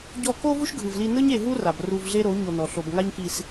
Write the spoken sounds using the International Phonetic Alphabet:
ɟ ɔ˧ k o˦ v u˦ ʃ ɡʱ ɯ˨ v l i˧ n ɯ˦ ɲ e˧ ɦ u˦ r a˨ b r u˧ v ɮ e˦ ɾ o˨˦ ɲ o˧ n ɔ˨ ɬ o˨ b ŋ a˦ ɲ k i˧ s

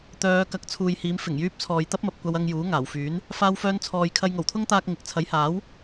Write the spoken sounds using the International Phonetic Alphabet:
t̪ œː˨˧ k ɐ˨˥ k̚ t͡sʰ uː˨ j h iː˨˧ m f ɪ˨˩ ŋ j yː˥ p̚ t͡sʰ ɔː˧ j t̪ ɐ˥ p̚ m ɐ˨ p̚ kʷ ɐ˧ w ɐ˧ ŋ j uː˨˥ ŋ aː˨˩ w f yː˨˥ n | f aː˧ w f œː˧ n t͡sʰ ɔː˨ j kʰ ɐ˧ j ŋ o˨˩ w t̪ʰ ʊ˥ ŋ t̪ aː˧ k̚ ŋ ɪ˨ k̚ t͡sʰ ɐ˨˥ j h aː˨˥ w

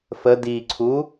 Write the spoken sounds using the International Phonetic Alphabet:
f ə d i ǀʰ u

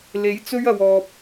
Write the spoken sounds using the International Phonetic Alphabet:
l e˨˥ j t͡s ɵ˥ ɥ ɐ˨ w ɔː˨ p̚

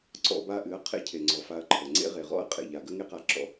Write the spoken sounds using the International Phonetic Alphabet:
ǀ ɔ̰˦ b a˧ ʔ ɨ˨˦ ɐ̯ qʰ ḛ˦ cʰ e˨ ŋ͡ǀ ɔ˨ f a˧ ɐ̯ ǃʰ ə˨ ŋ͡ǀ ḛ˦ ʁ e˨ ʁ ɔ̰˦ ɐ̯ qʼ ḛ˨ ʎ a˨ ɡ ə˦ ŋ e˦ q a˧ ǁ ɔ̰˧

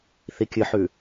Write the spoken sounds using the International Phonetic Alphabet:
θ i kʲ ɨ ħ ʉ

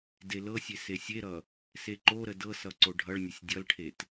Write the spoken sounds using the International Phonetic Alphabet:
d e l ɤ sʲ e s e sʲ e ɾ ʌ | s e ǃ o ɾ ə d ɤ s ʌ ǀ o ɖʱ ʌ ɭ nʲ ə sʲ dʲ ʌ l ʈʰ e t

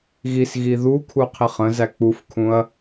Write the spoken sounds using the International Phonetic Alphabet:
ɣ i s ɣ i ð u kʰ u qʰ i χ ə̃ z æ k͡p u f kʰ ũ ɐ̯

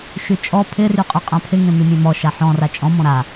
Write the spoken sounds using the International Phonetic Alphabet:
ʃ y t͡ʃʼ ɔ pʰ ɪ r y qʼ ʏ qʼ ã pʰ ɪ ŋ ẽ m y mʲ ẽ m ɔ ʃ a ħ ɔ̃ r a t͡ʃʼ ɔ̃ m ɔ̃ ɾ a

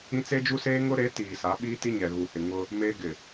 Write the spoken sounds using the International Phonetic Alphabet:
ĩ˦ t͡s e˦ d͡ʒ u˦ s eː˦ ŋ ʊ˦ ɾ e˨˦ t iː˨ s a˨˦ ɓ iː˦ t i˦ ɲ ɛ˨ ɣ u˨ h ɪ˨ ŋ ʊ˦ | m e˦ ɡ ɪ˨

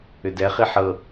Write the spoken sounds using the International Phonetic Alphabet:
ʏ d ɛ χ i ħ ɤ

